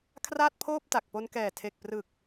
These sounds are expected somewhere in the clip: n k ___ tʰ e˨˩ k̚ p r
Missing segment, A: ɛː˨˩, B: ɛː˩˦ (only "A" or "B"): A